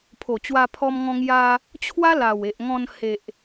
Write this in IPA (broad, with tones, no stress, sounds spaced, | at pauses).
pʰ o˨˩ t͡ɕ w a˧ pʰ ɔ˧ m ŋ ɔ̃˧ ŋ j a˧ | t͡ɕʰ w a˦ l a˨˩ w e˨ ʔ ŋ ɔ̃˧ n h e˨ ʔ